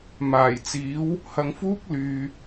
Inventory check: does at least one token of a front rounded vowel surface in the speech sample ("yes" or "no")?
yes